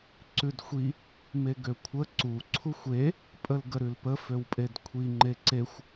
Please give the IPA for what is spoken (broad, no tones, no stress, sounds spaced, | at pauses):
ǀ ʉ d xʷ i | m e ɡ ø kʷʰ ə ǀ u ǀʰ u xʷ e | pʼ ə l ɡ ə ɾ ʉ l p ə f ø w pʼ e d kʷʰ i ŋ͡ǃ e ǀ e xʷ